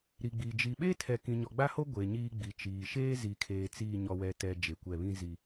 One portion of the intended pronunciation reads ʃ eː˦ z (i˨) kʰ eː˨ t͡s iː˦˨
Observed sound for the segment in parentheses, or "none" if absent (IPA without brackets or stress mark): i˨